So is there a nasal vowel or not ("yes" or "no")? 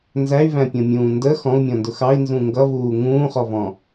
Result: yes